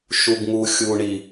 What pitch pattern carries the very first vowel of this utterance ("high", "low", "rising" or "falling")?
low